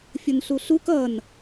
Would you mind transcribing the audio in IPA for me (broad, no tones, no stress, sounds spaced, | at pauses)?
fʲ ʊ n ɬ u ɬ u k ʌ n